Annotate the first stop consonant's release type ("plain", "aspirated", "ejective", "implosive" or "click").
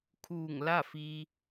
aspirated